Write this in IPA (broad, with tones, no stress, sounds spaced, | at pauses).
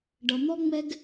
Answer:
ɖ ʌ˨ n̪ ɔ˥ ŋ͡m ɛ˥ ɡ